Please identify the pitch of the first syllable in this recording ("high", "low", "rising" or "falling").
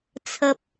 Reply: low